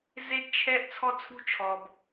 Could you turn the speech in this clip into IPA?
z e˦ ɡ t͡ʃʰ ɛ˦ ʔ t͡sʰ ɔ˦ t͡sʰ ṳ˦ t͡ʃʰ ɔ˨ b

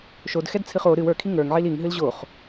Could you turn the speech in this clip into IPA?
ʃ o d x ɛ d t͡sʰ ɨ χ o ɾ ɨ w ə˞ kʰ i ŋ ə˞ ŋ ʕ i l i ŋ ɦ ɨ l ʑ o χ

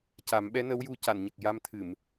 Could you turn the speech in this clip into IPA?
c a˨˩˦ m ɓ ɛ˧˥ n ə˧˥ w j u˧ c a˨˩˨ n ɲ ə˨˩ k̚ j a˧ m t̪ʰ ɨ˨˩˨ m

